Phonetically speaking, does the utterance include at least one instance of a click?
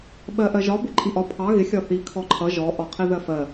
yes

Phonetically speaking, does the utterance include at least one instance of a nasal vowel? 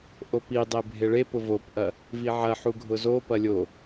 no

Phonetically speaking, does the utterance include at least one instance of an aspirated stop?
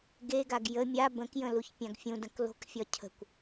yes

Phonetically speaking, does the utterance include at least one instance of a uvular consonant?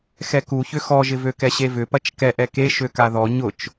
no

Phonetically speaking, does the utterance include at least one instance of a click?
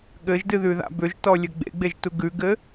no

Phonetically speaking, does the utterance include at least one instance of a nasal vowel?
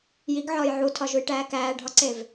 no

